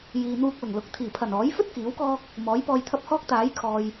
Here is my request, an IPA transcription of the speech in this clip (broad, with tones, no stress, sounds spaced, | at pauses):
j iː˨ n̪ uː˧ k̚ l ʊ˨˩ ŋ l ʊ˨˥ k̚ t̪ʰ iː˨˩ pʰ ɐ˨˩ n ɔː˨˥ j f ɵ˥ t̚ k iː˨˥ w k ɔː˥ k̚ | m ɔː˨˥ j p ɔː˧ j t̪ʰ ɐ˥ p̚ h ɔː˥ k̚ t̪ aː˨˥ j kʰ ɔː˨ j